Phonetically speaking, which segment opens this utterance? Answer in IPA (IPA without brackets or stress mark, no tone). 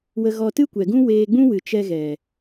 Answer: w